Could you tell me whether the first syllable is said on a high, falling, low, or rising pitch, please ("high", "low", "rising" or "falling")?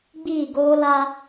falling